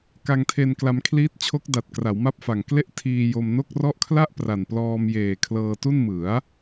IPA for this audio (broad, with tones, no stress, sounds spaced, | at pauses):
k a˧ ŋ tʰ e˧ n k l a˧ m kʰ l iː˦˥ t̚ t͡ɕʰ o˦˥ k̚ d a˨˩ t̚ k r a˩˦ w m a˥˩ p̚ f a˨˩ ŋ k l e˥˩ ʔ tʰ iː˧ j o˧ m n o˥˩ k̚ r ɔ˥˩ ʔ kʰ l a˥˩ ʔ p r a˨˩ n p l ɔː˧ m j eː˨˩ kʰ l ɤː˧ t u˥˩ n m ɯ˩˦ a̯